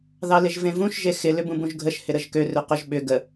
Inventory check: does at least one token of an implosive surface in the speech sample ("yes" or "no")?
yes